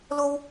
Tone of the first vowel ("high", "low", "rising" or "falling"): high